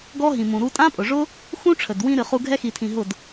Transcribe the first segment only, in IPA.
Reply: ɡ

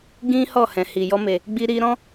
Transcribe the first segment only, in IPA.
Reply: ɡ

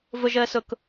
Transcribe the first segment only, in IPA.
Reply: v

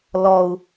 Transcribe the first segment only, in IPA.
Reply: l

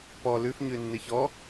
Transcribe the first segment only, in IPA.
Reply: p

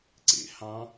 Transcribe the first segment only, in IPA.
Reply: ǀ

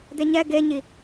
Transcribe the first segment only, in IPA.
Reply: d̪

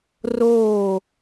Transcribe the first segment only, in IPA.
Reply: r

